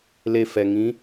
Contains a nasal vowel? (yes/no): yes